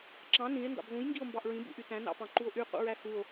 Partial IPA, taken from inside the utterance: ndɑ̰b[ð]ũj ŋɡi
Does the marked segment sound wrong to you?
no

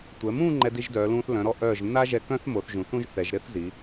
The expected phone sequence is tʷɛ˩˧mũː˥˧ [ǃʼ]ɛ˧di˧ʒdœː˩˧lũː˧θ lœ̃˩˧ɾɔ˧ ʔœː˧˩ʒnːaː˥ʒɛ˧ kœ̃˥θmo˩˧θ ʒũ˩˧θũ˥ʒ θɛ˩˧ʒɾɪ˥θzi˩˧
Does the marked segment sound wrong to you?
yes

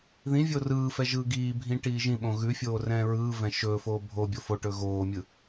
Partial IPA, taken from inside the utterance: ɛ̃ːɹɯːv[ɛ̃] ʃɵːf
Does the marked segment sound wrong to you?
no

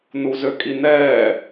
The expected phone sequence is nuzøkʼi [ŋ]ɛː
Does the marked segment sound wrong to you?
yes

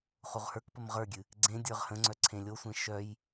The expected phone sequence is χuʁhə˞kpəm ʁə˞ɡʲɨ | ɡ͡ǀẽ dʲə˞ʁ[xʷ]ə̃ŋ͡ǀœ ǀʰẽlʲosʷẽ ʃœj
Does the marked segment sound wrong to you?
yes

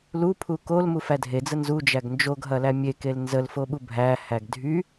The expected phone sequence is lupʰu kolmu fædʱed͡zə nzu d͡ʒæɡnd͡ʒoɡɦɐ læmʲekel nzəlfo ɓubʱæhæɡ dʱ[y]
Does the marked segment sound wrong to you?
no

